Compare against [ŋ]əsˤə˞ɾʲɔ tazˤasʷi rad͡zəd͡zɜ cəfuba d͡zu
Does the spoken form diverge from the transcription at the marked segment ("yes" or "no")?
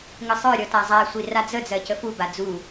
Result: no